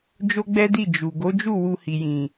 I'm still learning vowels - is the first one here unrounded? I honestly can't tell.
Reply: no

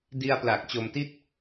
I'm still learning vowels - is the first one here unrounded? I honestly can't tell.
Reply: yes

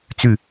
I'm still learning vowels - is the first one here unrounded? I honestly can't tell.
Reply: no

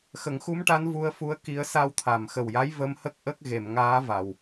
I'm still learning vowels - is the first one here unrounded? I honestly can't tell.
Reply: yes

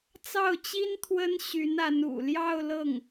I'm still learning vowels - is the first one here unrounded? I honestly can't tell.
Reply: yes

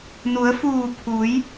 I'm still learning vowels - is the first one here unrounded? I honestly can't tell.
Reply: no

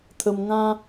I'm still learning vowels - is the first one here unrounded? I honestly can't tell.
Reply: yes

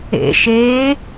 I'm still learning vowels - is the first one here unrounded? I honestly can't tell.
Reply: yes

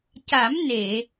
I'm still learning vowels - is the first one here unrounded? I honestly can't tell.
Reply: yes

